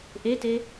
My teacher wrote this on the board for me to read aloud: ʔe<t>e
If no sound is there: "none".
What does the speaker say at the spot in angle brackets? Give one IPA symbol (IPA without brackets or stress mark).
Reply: t